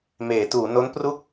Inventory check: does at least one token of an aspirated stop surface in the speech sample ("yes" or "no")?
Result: no